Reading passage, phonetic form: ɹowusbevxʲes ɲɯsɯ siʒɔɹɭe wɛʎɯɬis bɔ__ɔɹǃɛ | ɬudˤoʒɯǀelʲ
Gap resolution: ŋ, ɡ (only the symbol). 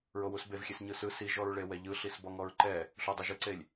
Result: ŋ